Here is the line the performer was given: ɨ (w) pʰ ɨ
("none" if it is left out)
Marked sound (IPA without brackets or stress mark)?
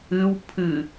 w